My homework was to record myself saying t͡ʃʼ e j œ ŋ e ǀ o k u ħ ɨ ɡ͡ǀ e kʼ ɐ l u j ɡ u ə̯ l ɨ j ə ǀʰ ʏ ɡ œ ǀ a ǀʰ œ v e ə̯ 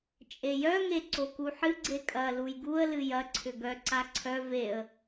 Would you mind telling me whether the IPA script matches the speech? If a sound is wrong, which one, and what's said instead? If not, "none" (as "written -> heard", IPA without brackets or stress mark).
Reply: ə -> ɐ